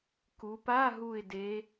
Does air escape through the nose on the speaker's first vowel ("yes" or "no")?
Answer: no